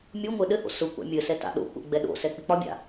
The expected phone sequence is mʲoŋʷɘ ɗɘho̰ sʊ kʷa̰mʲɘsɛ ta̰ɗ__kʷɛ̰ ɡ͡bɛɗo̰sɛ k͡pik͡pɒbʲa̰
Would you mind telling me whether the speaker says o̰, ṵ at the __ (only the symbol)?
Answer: o̰